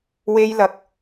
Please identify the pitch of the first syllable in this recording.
high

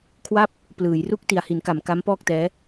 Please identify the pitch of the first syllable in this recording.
falling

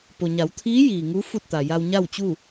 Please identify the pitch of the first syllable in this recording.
low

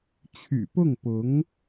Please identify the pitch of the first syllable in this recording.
low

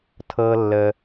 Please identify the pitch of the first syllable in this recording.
low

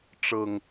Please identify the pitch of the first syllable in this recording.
low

